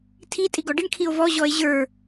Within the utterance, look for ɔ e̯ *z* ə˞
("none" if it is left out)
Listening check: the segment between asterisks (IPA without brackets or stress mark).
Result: ʑ